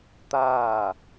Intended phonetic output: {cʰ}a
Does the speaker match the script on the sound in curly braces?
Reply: no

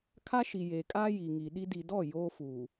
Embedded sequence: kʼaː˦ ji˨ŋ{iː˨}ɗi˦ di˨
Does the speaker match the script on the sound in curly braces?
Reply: no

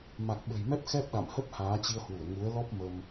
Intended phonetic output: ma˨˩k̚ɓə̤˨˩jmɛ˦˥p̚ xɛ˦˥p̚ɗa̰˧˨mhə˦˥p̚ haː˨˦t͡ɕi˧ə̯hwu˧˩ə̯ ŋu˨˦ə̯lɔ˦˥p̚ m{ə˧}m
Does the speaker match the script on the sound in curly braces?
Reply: yes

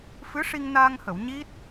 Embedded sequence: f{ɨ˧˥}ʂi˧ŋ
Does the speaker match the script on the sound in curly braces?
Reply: yes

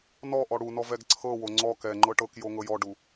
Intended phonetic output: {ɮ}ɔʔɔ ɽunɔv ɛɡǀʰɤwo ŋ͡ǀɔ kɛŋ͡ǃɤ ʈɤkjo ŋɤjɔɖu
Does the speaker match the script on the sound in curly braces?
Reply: no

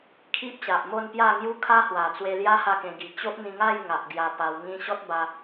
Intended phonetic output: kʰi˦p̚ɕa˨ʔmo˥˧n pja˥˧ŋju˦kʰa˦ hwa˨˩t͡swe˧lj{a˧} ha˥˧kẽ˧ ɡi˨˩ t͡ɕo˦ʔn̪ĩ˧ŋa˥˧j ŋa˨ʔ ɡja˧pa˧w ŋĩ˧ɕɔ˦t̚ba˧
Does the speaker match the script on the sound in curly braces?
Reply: no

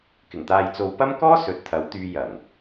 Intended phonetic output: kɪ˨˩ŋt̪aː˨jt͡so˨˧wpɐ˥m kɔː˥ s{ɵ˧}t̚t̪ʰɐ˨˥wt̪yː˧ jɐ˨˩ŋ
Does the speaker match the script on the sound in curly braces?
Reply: no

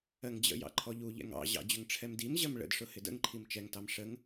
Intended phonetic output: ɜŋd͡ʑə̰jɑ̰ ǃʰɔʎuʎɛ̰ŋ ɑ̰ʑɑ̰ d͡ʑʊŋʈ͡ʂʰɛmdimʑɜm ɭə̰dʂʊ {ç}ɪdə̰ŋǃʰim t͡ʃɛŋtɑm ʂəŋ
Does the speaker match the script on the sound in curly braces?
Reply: no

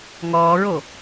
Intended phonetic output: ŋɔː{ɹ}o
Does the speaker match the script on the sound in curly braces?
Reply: yes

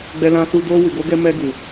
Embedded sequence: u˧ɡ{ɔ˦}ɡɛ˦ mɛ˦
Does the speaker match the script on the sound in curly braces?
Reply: no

